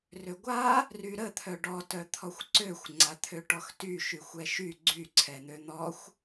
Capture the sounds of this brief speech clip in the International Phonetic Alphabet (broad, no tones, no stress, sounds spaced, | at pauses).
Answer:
r ø ɡʷ a | r y ɾ ə t̪ʰ œ ɖ ɔ t œ t̪ʰ ɔ xʷ ǀ ø xʷ ŋ͡ǀ a t̪ʰ ø ʈ ɔ x t y ʃ y xʷ ɛ ʃ y ɡ͡ǀ y ǀʰ ɛ n̪ ø n̪ ɔ xʷ